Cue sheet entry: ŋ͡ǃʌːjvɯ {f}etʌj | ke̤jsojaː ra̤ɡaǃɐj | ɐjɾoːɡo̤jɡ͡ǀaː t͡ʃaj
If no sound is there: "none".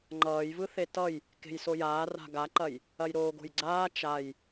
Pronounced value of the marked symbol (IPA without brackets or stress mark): θ